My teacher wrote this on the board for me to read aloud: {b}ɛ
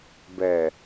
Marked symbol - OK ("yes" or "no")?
yes